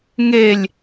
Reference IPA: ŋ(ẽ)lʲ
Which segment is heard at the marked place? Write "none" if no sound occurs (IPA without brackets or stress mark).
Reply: e